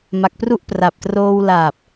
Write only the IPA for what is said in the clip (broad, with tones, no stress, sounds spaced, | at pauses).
m a˨˩ k̚ p r u˦˥ ʔ p r a˨˩ p̚ t r oː˧ w l aː˨˩ p̚